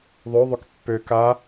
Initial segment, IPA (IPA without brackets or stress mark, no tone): ðˤ